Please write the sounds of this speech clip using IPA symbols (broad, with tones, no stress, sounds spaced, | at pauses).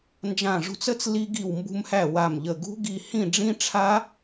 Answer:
n d͡ʒ ã˧˩ ʐ ṳ˧ t͡s ə˦˥ t͡s l i˧ ɡ i˧˩ w m b ṳ˧ m h æ˧˩ w a˧˩ m ʎ ə˧˩ ɡ ṳ˦˥ ɡ i˧˩ h ĩ˥˩ ɖ͡ʐ ĩ˦˥ ʈ͡ʂʰ a˦˥